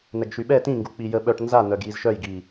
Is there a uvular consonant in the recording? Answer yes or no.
no